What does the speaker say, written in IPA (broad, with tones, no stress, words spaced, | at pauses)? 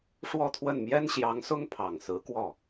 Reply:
ʂwɔ˥˧t̪ʰwə˥˩n mjɛ˥nɕjɑ˧˥ŋsʊ˥ŋ pʰɑ˨˩ŋsɹ̩˧˥kwɔ˥˩